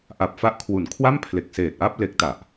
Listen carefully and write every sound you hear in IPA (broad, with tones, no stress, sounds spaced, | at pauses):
ʔ a˨˩ p̚ f a˦˥ ʔ kʰ w u˩˦ n kʰ w a˥˩ m pʰ l e˨˩ k̚ s eː˨˩ t̚ ʔ a˥˩ p̚ l e˦˥ k̚ t a˨˩ ʔ